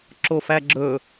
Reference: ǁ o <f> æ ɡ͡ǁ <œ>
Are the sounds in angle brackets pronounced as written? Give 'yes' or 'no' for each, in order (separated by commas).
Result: yes, no